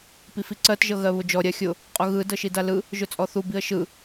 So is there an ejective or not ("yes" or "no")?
yes